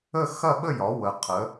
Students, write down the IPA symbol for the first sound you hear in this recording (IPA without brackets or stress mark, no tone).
ə